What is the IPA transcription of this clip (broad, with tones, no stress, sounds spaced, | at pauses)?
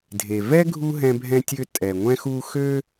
dʱ e˨ v ɛ˥ ɡʱ u˥ ɦ ɛ̃˦ bʱ ɛ̃˦ tʲ ø˦ tʼ ɛ˨ ŋʷ ɛ̃˦ x u˦ x ø˥